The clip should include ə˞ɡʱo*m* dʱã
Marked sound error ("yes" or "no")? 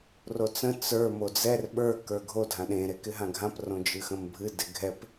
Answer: yes